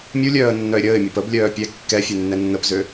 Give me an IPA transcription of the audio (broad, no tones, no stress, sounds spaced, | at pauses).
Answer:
mʲ u lʲ œː ə̯ nː œ ɪ̯ ɾʲ əː ɪ̯ mʲ ø p ə b lʲ œː pʲ ɛ kː ɛ fʲ ø nː ɛ nː ə p z ø